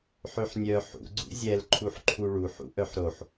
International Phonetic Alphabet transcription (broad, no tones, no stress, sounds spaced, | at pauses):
ħ ø ħ nʲ œ ħ ṵ ɡ͡ǀ ṵ zʲ ɛ l ǃʰ u ħ ǃʰ u ɭ u ħ ṵ ʔ œ ħ ɾ o ħ